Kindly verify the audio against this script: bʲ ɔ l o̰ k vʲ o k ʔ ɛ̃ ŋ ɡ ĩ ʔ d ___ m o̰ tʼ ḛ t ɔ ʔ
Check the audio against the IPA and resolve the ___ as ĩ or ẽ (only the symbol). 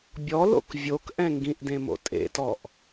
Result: ẽ